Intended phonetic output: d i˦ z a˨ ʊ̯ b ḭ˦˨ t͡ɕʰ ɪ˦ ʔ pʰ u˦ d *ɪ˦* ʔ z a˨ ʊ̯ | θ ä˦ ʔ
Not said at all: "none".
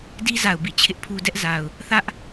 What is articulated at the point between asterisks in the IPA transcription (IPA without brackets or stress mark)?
ɛ˦